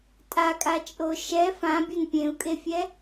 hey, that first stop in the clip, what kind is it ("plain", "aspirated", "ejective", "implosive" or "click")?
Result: ejective